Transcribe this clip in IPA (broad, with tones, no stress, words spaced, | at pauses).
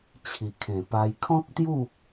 t͡ɕʰi˨˩kʰẽ˨˩pa˧j kʰɔ̃˦k̚t̪ju˥˧